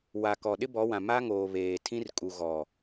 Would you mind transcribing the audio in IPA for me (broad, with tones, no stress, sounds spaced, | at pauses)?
w a˨ k ɔ˨ ɗ ɪ˦ b ɔ˨˦ w ã˨ m a˦ ŋ oː˨ β eː˨ tʰ ĩ˦ r kʼ u˨ ɣ ɔ˨